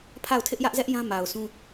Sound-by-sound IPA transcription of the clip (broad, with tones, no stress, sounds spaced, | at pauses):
pʰ a˦˨ ʊ̯ tʰ ɪ˦ ʔ j ä˦ ʔ z ɛ˦ ʔ j ã˦ m a˨ ʊ̯ sʰ ũ˦